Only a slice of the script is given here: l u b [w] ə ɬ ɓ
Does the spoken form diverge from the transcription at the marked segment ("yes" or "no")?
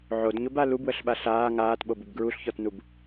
no